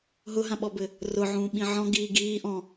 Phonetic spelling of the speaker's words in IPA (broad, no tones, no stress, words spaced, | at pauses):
ɦʊɦãɓɔbɘ | rʊʕũːɓĩ ʕɔ̃ɡiː ɡiː ʔɔ̃